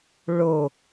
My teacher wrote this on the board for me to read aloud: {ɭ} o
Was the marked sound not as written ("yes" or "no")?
no